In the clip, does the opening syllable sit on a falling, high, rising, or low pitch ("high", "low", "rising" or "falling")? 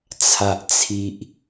low